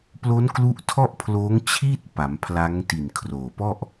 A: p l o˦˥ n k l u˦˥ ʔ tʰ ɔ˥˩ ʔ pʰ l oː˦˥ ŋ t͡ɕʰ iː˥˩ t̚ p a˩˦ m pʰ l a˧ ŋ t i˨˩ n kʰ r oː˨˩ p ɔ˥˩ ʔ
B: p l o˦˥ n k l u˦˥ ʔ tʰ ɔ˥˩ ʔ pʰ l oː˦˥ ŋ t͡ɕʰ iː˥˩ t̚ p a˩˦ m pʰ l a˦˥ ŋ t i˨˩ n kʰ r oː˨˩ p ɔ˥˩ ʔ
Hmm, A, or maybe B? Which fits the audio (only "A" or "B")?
B